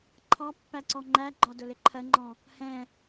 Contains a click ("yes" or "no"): yes